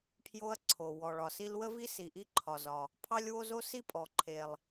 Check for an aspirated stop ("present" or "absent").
present